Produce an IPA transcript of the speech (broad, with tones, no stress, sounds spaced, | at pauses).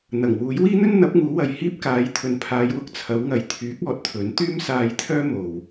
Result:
n̪ ɐ˨˩ ŋ w uː˨˥ j w iː˥ n̪ ɵ˥ n n̪ ɐ˨˥ p̚ ŋ uː˨˥ w ɐ˨ j h iː˥ p̚ k aː˨˥ j t̪ʰ ɵ˨ n pʰ aː˨˧ j w ʊ˧ k̚ t͡sʰ ɐ˨˧ w ŋ ɐ˨ j t̪ʰ yː˨˥ k̚ ɔː˨˥ t̚ t̪ʰ ɵ˨˥ n t̪ yː˥ m s aː˧ j t̪ʰ œː˥ m o˨ w